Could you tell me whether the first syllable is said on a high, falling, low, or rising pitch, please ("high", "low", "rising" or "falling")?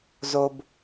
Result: low